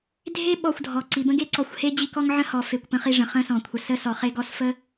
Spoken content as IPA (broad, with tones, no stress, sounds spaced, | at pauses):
dʱ e˦ ɓ ɔ˨ xʷ dʱ ɔ˩ ǀ i˩ b ə̃˥ ɡ e˥ ǀ ɔ˨ xʷ h e˥ d͡ʑ i˦ k ɔ˥ ŋ ʕ ə̃˦ h ɔ˩ f e˨ kʷ p ə̃˦ χ i˦ ʐ ə̃˩ χ ə̃˦ s ɔ̃˩ kʷʰ ə˨ s ə˥ s ɔ˩ χ e˦ ɡ ɔ˦ s f ə˥